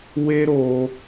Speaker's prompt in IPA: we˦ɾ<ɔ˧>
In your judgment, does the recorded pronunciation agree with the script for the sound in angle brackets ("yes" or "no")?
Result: no